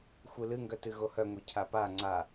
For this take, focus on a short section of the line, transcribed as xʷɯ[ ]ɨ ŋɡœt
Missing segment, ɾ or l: l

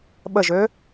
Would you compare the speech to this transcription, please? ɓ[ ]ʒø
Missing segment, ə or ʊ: ə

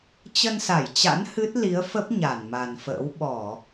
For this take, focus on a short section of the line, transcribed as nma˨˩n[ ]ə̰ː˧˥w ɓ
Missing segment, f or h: f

